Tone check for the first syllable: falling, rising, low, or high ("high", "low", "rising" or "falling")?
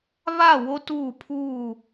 falling